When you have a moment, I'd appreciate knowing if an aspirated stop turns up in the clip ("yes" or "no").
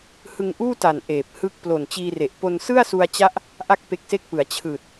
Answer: yes